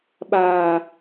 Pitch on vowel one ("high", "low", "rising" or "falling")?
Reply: high